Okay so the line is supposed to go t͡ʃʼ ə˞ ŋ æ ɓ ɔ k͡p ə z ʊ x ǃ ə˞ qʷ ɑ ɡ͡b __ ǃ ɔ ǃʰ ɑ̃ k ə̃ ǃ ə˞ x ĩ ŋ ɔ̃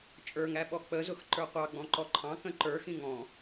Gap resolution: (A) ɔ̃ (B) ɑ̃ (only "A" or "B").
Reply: A